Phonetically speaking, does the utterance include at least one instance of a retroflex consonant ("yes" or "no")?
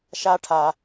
yes